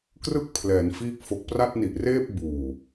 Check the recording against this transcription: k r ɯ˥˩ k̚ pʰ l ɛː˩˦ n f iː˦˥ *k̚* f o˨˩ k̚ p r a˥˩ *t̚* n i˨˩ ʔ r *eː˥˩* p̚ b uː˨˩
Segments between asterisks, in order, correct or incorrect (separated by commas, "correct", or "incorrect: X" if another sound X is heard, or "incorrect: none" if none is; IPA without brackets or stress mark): correct, correct, correct